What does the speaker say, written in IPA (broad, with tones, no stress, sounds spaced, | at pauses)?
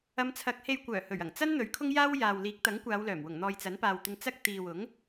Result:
ɐ˨˧ m t͡sʰ ɐ˨˥ k̚ h e˧ j kʷ œː˨˩ h ɵ˨˩ ɥ ɐ˨˩ ŋ t͡s ɐ˥ n n̪ ɵ˨˥ ɥ kʰ ʊ˥ ŋ j aː˥ w j aː˨ w l iː˨˥ k̚ t̪ ɐ˨˥ ŋ kʷ aː˨˧ w l œː˨˩ m w ʊ˨˩ ŋ n̪ ɔː˨ j t͡s ɐ˨˥ n p aː˨ w t̪ ɪ˧ ŋ t͡s ɐ˥ k̚ t̪ iː˨ w ʊ˨˥ ŋ